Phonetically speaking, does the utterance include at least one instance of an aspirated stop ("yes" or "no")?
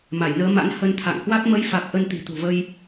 yes